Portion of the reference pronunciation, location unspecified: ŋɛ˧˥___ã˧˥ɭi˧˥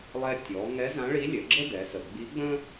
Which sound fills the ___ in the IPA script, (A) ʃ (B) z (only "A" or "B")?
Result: B